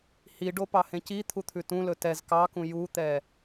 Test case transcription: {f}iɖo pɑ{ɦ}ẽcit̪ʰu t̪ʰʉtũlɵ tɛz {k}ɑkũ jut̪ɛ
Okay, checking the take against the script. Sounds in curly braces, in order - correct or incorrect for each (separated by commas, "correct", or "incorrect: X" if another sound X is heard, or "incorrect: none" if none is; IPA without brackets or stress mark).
incorrect: h, incorrect: h, correct